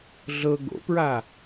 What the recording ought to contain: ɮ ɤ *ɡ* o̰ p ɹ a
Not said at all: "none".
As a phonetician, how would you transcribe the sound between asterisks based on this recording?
ɡ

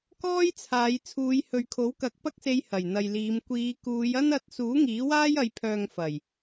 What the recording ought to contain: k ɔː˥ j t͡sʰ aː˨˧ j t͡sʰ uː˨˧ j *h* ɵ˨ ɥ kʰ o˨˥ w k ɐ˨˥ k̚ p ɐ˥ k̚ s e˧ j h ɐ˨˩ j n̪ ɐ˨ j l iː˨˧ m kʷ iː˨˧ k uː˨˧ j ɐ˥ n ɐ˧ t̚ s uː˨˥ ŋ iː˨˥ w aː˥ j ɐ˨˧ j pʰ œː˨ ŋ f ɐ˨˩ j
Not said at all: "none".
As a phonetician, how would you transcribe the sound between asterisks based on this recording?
h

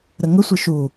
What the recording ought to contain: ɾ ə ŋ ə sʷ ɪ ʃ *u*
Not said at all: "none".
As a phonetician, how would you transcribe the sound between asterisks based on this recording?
u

